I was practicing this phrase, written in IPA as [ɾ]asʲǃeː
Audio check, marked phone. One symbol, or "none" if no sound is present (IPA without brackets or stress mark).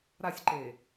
ɾ